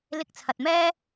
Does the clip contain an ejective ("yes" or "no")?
no